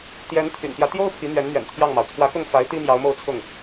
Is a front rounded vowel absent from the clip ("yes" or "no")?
no